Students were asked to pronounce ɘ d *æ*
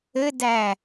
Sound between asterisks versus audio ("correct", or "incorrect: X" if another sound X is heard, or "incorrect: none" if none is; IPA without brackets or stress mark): correct